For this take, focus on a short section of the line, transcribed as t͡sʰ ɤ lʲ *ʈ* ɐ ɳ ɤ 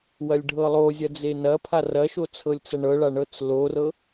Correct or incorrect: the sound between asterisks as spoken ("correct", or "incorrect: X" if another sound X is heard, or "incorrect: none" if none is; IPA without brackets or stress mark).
incorrect: t͡s